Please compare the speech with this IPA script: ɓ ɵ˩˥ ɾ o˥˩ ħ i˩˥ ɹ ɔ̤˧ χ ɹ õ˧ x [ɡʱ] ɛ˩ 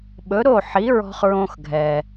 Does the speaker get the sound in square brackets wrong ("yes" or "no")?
no